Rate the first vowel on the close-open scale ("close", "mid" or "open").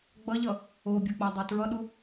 mid